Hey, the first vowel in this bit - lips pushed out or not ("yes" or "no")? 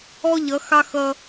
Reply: yes